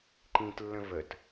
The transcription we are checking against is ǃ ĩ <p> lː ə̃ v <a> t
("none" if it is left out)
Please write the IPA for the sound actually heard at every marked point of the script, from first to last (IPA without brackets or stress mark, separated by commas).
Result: t, ə